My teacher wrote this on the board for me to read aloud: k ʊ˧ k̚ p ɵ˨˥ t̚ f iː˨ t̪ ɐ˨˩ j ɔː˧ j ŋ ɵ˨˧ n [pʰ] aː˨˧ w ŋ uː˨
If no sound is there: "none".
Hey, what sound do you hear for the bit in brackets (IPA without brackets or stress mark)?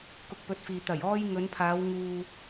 pʰ